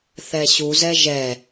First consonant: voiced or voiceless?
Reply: voiceless